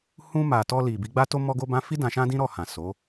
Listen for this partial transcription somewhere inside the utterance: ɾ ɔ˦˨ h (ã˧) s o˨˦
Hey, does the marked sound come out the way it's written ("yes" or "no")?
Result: no